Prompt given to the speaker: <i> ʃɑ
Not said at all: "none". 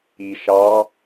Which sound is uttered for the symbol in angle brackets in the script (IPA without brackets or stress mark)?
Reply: i